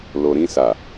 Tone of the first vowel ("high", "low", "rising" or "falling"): low